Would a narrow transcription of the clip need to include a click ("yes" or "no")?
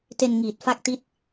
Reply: no